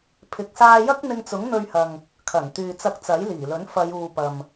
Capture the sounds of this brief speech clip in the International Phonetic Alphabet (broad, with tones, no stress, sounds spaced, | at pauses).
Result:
pʰ ɪ˨ k̚ s aː˧ j ɐ˥ k̚ n̪ ɪ˧ ŋ t͡s ʊ˨˥ ŋ n̪ ɵ˧ ɥ h ɐ˨ ŋ | kʰ ɐ˨˩ n t̪ yː˨ t͡s ɐ˧ k̚ t͡s ɐ˨˥ j l iː˨˩ l ɵ˨˥ n f ɐ˨˧ j uː˨ p ɐ˨ m